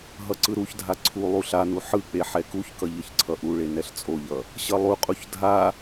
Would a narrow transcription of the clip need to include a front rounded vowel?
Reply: no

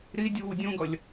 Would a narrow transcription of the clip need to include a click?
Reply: no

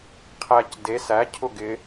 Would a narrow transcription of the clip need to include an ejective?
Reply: no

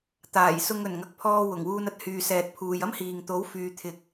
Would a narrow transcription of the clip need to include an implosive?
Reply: no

